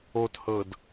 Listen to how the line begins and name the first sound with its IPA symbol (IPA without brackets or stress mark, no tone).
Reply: o